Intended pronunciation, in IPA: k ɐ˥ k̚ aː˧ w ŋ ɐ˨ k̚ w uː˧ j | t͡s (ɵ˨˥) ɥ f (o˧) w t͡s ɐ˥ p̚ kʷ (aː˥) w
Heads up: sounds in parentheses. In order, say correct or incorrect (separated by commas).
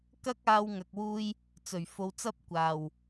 incorrect, incorrect, incorrect